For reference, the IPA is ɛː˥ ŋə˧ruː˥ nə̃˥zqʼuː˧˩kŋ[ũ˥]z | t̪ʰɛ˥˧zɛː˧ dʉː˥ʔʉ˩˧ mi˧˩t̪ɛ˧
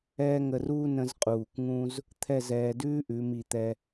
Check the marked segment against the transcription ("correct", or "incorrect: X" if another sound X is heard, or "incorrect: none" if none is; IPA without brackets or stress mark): correct